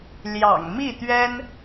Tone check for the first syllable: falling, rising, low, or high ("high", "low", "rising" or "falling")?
low